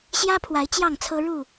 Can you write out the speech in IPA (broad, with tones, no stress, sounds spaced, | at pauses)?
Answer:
ɕ j ä˦ pʰ w a˨˦ ɪ̯ t͡ɕ j ɑ˥˨ ŋ t͡sʰ ɤ˦ ɻ u˥˨